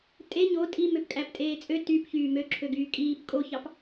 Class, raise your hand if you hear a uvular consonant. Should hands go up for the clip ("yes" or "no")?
no